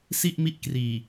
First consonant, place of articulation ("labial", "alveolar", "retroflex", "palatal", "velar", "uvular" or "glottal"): alveolar